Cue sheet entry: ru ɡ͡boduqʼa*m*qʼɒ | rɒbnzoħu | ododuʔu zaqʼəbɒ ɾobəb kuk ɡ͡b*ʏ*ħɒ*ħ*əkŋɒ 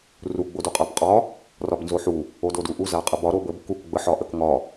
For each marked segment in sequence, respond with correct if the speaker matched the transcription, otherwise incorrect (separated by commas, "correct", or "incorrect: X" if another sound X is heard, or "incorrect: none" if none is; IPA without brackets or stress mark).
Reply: incorrect: b, incorrect: ə, incorrect: ʔ